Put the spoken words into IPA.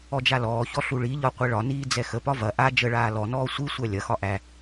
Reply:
ɔ d͡ʒ a l ɔː ç ɔ ɬ u ɭ i ʎ ɒ qʷ ɛ ɭ ɒ n iː d͡z ɛ x ə p ɒ v ɐ ʔ a d͡ʒ ə ɭ aː l ɔ n ɔː sʷ i sʷ æ lʲ ɐ x ɒ ʔ æ

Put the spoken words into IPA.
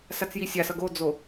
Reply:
s a t͡s j i sʲ a s ʌ ɡ o d͡z o

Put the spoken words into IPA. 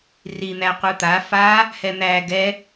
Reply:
r i n̪ æ qʷ ɯ t̪ a f a | h ɛ n̪ æ ɡ ɛ

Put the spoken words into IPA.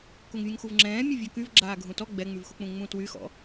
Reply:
k u ŋ vʲ ũ ŋ x u v ŋ͡ǁ ɛ̃ː mʲ u vʲ ɔ k y v ɡ͡ǁ aː ɡʱ ũ t ɔ ɡ͡b ɛ ŋ͡m y v x u k͡p ũ ŋ͡m ũ t w y x ɔ̰

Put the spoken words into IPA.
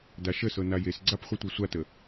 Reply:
d a ʃ ə s ɤ n a j e s ɡ͡ǀ a p χʷ ɤ tʷ ɤ sʷ a t ə

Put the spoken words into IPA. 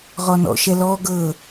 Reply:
ʁ ɔ n ɔ̰ ʃ ɛ l ɔ ɡ ɤ

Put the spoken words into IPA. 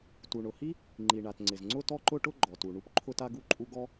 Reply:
t u˩ ɳ ʊ˩ h i˥ | ŋ͡ǃ i˩ ɳ a˩ t ŋ͡ǀ ɪ˩ z ŋ͡ǀ ʊ˥ t ɔ˥ ǃ ʊ˥ ʈ ʊ˥ ɡ͡ǃ ɔ˩ t u˩ ɳ u˥ p ǃʰ ʊ˥ t a˥ ɡ u˥ ǃʼ u˥ ɡ ɔ˥

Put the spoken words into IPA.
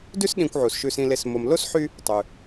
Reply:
d ʉ˦ s ɗ ĩ˨ kʷ ʕ u˩ s ʃ ʉ˨ s ĩ˨ l e˨ s m o˨ m l o˥ s ħ y˦ | tˤ ʉ˩

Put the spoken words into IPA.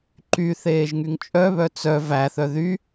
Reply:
ǃ y θ eː ʒ ŋ y ŋ t͡ʃʼ œ β œ t͡s œ v æ θ œ ð y

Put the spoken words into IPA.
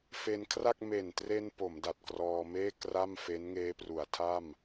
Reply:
f e˧ n kʰ r a˥˩ k̚ m e˨˩ n t r e˧ n p o˩˦ m d a˨˩ t̚ k r ɔː˧ m eː˥˩ k r a˥˩ m f e˦˥ n ŋ eː˦˥ p r u˩˦ a̯ tʰ a˥˩ m

